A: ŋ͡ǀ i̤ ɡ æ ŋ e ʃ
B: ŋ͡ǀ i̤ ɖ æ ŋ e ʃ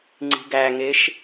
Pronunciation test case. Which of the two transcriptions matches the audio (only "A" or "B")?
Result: A